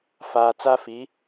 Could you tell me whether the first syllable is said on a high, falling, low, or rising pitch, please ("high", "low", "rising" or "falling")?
low